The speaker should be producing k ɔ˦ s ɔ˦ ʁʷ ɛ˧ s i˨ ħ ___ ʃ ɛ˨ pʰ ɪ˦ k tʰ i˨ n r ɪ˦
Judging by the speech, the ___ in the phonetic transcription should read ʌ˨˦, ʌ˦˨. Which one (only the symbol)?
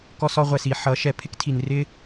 ʌ˨˦